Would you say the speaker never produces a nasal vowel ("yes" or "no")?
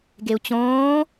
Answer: no